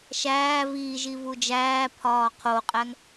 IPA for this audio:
ʃ æː v iː ʒ i v u d͡ʒ æː pʰ ɒː qʰ o qʼ æ ŋ

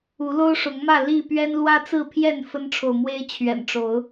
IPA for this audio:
u˨˦ l o˦ ʊ̯ ʂ ʊ˨˦ ŋ m ä˥˨ l i˥˨ p ɥ ɛ˦ n l w ä˦ t͡s ɹ̩˥˨ pʰ j ɛ˥˨ n f ə˦ n ʈ͡ʂʰ o˨ ʊ̯ m w e˦ ɪ̯ t͡ɕʰ ɥ ɛ̰˨˩ n ʈ͡ʂ o˨˦ ʊ̯

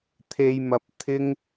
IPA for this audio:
t̪ʰ e˥ j m ɐ˥ p̚ t̪ʰ ɪ˥ ŋ

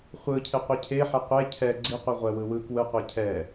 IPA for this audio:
χʷ ɯ cʰ e qʷ i cʰ e ħ ɛ qʷ e cʰ ɛ ɡ͡ǀ i qʷ i ʁʷ ɛ w ɯ w ɯ k w ɯ qʷ ɛ cʰ ɛ

